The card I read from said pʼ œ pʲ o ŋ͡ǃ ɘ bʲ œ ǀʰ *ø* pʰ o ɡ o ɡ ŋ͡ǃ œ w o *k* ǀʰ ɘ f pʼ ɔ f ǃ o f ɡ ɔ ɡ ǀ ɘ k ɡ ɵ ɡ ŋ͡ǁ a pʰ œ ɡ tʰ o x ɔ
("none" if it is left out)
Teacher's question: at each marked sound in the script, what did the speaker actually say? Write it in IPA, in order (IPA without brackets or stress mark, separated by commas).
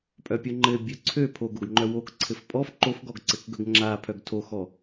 ø, k